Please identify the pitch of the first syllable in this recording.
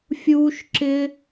high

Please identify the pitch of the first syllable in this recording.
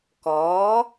rising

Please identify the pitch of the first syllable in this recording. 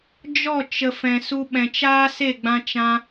falling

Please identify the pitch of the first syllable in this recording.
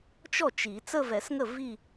falling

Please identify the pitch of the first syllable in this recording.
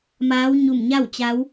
rising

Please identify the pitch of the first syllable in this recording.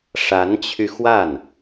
rising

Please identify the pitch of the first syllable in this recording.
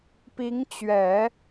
rising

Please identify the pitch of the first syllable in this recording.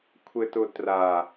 low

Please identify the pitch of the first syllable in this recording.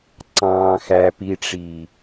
low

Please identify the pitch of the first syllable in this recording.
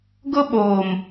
high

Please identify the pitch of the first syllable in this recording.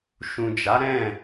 low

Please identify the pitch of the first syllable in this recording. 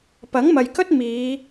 rising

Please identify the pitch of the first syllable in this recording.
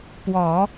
low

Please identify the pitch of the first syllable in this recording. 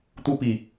high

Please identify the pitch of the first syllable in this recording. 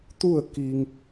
falling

